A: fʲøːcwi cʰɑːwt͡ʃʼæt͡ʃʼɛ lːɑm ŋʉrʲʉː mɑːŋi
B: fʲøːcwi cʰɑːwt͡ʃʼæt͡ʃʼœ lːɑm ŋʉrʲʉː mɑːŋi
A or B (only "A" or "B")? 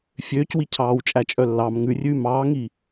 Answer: B